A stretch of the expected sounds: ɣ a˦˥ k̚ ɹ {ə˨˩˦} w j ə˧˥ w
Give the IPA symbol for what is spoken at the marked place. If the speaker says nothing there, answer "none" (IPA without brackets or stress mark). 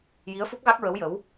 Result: ə˧˥